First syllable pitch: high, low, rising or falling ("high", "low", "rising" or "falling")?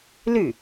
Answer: falling